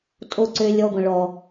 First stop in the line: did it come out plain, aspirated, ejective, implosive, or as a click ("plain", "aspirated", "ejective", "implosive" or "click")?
ejective